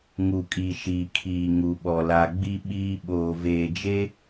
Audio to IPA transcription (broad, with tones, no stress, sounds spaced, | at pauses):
ŋ u˨ kʼ i˨ ʃ iː˨ kʰ iː˨ ŋ u˨ ɓ ɔ˨ l a˨ ɡ͡b i˨ ɓ iː˨ ɓ oː˨ v eː˨ d͡ʒ e˦